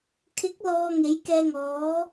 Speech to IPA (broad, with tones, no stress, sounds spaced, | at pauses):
kʰ ɪ˨˥ k̚ l ɔː˧ ŋ e˨˥ j k ɛː˧ ŋ ɔː˨˥